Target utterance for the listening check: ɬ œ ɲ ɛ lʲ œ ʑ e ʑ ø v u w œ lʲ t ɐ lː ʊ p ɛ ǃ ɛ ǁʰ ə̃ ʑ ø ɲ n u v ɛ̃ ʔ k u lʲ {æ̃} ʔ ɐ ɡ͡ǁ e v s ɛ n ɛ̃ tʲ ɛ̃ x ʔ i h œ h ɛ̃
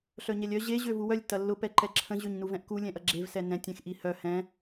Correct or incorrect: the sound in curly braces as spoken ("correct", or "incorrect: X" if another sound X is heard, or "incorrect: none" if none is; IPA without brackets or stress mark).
incorrect: ɛ̃